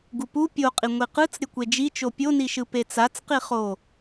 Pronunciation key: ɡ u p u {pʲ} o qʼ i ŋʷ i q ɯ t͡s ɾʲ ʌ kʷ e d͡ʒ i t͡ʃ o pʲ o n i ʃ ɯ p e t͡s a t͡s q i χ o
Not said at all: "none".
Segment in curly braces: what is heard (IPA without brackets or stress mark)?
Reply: pʲ